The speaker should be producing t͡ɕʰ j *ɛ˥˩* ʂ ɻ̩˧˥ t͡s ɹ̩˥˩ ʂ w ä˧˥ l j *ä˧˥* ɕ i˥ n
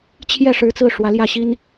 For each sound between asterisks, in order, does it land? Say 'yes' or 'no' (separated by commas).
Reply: yes, no